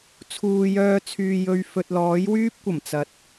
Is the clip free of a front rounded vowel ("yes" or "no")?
no